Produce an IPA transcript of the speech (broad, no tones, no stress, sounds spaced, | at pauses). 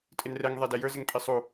tʼ ɪ n r ɛ ŋ ðˤ ɛ d ɛ j ə˞ z ɪ ŋ pʼ i sˤ u